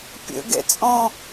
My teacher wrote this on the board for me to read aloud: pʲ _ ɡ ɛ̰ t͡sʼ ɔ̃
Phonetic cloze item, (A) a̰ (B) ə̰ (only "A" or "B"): B